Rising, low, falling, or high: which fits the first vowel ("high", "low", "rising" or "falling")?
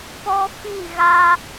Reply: high